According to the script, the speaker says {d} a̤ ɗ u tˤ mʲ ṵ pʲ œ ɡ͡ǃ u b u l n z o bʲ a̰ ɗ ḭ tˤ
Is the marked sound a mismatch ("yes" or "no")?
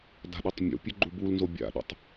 no